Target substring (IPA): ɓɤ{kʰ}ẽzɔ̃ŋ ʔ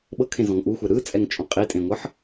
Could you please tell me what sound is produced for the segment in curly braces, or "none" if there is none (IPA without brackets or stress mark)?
kʰ